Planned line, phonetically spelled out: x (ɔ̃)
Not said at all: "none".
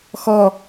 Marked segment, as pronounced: ɔ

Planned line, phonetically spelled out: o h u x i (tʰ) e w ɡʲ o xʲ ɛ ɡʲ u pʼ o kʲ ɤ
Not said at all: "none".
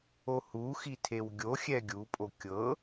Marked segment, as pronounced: tʰ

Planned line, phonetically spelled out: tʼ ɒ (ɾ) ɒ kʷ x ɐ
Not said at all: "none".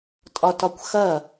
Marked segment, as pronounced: t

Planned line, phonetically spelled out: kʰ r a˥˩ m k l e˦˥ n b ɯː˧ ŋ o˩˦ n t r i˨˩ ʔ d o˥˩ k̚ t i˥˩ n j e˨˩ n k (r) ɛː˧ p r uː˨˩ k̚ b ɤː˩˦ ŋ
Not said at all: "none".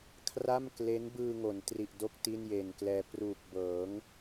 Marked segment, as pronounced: l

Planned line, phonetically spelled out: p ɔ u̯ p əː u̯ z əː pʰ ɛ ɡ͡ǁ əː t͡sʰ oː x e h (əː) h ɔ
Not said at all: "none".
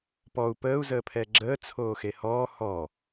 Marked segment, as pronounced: ɔː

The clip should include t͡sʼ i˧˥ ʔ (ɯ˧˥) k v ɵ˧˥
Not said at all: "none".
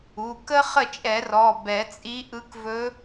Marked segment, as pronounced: ɯ˧˥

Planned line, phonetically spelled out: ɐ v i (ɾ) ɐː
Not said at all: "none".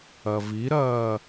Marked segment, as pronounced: ɾ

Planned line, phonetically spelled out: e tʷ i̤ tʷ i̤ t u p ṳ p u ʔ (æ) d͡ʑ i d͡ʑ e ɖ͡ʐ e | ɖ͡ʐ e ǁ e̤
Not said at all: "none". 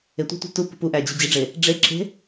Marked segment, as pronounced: æ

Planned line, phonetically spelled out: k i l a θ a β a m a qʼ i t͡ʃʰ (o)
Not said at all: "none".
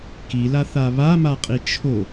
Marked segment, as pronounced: o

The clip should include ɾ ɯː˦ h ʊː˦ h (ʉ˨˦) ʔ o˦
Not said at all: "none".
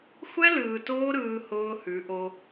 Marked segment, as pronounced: ʉ˨˦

